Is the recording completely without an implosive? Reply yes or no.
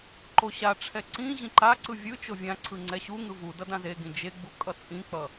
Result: yes